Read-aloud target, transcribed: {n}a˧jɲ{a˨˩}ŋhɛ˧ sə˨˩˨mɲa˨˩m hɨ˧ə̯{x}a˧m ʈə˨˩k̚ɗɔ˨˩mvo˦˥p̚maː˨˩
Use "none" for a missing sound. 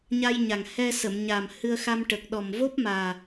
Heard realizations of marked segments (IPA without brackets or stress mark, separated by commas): ɲ, a˨˩, x